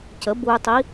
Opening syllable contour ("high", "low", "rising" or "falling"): rising